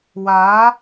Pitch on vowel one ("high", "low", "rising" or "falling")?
rising